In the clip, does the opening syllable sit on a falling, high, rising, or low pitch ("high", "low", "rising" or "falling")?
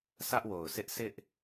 high